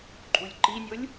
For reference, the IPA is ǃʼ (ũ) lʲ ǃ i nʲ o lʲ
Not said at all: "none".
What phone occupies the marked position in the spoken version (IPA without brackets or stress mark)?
u